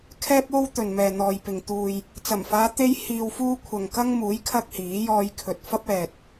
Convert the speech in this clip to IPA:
kʰɛː˥p̚o˥w t̪ɵ˨nmɛː˨n̪ɔː˨jpɪ˨ŋ t̪uː˨j | t͡sɐ˨˩mfaː˨˧ t̪e˥j hiː˧wfuː˥ kʷʰɐ˨ŋkɐ˥ŋmuː˨˥j kʰɐ˥k̚hiː˨˥ jɔː˧jkʰɵ˨t̚ fɐ˥p̚ ɛː˨t̚

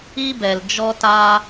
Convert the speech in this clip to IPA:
i˦bɛ˨l d͡ʒɔ˧taː˧

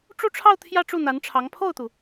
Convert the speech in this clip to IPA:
ʈ͡ʂu˥˧ʈ͡ʂʰɑ˥˧ʊ̯ t̪ʰjä˥˧ʈ͡ʂu˥˩n̪a˧˥nʈ͡ʂʰɑ˧˥ŋ pʰo˥˩ʊ̯t̪u˩

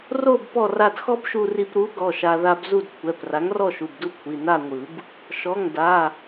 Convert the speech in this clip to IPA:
ro˥˧b pɔ˥˧ra˥˧d xɔ˥bʃu˧ri˧pɾu˨˥ ɡɔ˩˧˩ʃa˧ ða˧b zu˥˧dkʷʰɛ˩˧˩p ra˨˥ŋrɔ˥˧ʃu˩˧˩bdu˥˧ kʷʰi˩˧˩na˥˧ŋʷɯ˨˩˦b | ʃɔ˩˧˩ŋ da˩˧˩

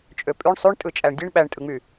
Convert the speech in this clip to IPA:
t͡ʃʼøpʼyɳ sˤyɳ tʼɯt͡ʃʼæɳdʲeɳ ɓæɳtʼɯŋ͡my

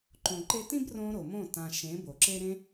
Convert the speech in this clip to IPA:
ǃõ˨ǃe˧tĩ˦b rõ˦ɾo˨mõ˦˨ tã˨ ʃẽ˨˦bo˨ǁe˦ ɾẽ˦

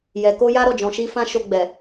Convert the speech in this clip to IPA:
jɛ˨ko˧ ja˦ɾɔ˦˨d͡ʒɔ̃˨ʃi˧ fã˦ʃo˧ ɡ͡bɛ˨

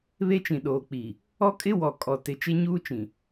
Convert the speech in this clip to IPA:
βe˦t͡ʃĩ˨ɗoː˨k͡pi˨ | ɔ˦kʼɪ˦wɔ˨ kʼɔ˨tɪ˨ t͡ʃe˦ɲuː˦t͡ʃĩ˨

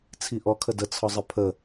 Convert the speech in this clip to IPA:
t͡sʰiʔɔ kʰədə t͡sʰɒzˤəpʰə

